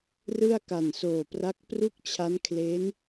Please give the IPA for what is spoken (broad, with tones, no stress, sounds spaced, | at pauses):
r ɯ˥˩ a̯ k a˨˩ n s oː˨˩ p r a˦˥ k̚ p r u˥˩ k̚ t͡ɕʰ a˦˥ n kʰ l e˦˥ n